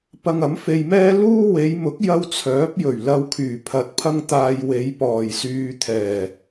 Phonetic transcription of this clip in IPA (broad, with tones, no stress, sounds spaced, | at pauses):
p ɐ˧ ŋ ɐ˨˥ m f e˧ j m ɛː˥ l uː˥ w e˨˧ j m ʊ˨˥ k̚ j ɐ˧ w t͡sʰ œː˨˥ p̚ j ɵ˨˩ ɥ l ɐ˧ w kʰ yː˨˩ pʰ ɐ˨ t̚ pʰ ɐ˧ ŋ t̪ aː˨ j w e˨˧ j p ɔː˨˩ j s yː˨ t̪ʰ ɛː˨˩